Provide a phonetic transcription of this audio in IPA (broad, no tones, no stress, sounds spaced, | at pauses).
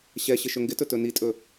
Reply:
ɕ ɛ ɕ ɪ ʃ ɵ ŋ ɡ ɪ t ɵ t ɵ n i tʼ ɵ